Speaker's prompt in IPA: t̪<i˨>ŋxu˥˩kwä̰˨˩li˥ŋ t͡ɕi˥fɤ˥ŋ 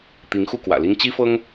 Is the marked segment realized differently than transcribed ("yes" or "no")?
yes